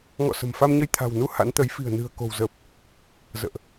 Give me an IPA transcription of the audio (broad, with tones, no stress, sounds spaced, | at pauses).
ŋ ɔ̰˧˨ s ə̤˨˩ m f a˧ m ɲ ə˧ j t̪ʰ a̤˨˩ w n u˧ h a̰˧˥ n t̪ ə˨˦ j f i̤˨˩ ə̯ n ɨ̤˨˩ ə̯ k o̤˨˩ w z əː˨˩ p̚ | z ə̰ː˧˨ ʔ